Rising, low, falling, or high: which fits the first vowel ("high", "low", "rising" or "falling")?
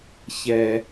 low